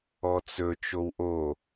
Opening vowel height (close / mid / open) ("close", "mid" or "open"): mid